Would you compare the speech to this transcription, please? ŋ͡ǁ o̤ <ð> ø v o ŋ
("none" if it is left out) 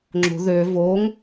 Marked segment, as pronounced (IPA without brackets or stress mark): ð